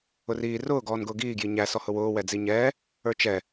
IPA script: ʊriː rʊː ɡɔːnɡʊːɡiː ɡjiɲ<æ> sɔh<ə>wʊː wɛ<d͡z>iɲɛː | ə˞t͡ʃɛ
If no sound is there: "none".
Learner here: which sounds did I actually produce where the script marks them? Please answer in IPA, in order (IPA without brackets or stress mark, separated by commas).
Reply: æ, ʊ, d͡z